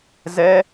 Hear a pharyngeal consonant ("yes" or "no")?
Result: no